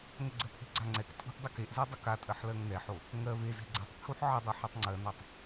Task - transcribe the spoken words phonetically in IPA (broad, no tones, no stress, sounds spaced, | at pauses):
ŋ ə ɡ͡ǀ ə pʰ e̤ ɡ͡ǀ a ŋ͡ǀ ɛ k tʼ ṳ ʔ dˤ ə k e ʔ z ɛ dˤ ə k a tʼ ɜ ħ l ɜ ŋ n ɛ ħ o | ŋ ɜ v e z e̤ ɡ͡ǀ ɛ tˤ pʰ u ħ ʕ ə dˤ ɜ ħ a tˤ ŋ͡ǀ ɜ n a tˤ